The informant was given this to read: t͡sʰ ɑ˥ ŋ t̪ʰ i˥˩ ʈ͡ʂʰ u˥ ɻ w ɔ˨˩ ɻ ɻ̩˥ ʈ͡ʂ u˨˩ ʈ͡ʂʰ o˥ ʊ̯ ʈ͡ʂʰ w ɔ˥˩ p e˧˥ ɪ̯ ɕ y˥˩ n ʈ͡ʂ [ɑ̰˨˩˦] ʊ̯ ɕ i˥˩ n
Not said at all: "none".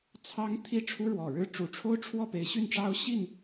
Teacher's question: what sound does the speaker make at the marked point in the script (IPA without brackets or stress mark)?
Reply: ɑ˥